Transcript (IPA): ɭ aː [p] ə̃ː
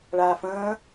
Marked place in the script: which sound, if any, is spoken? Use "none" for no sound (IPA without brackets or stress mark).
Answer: f